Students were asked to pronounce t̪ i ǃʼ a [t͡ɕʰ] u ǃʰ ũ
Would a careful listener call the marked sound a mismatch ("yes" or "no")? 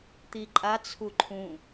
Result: yes